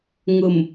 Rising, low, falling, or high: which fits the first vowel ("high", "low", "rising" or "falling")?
low